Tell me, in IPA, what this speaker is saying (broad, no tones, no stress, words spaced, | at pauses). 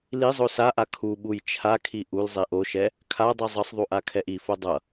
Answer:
lizˤo saʔa kʰu ɓujt͡ʃʰakʰi ʔulzˤi ʔoʃɛ | kʰadˤi zˤʌsˤðˤu ʔakʰɛʔifo dˤʌ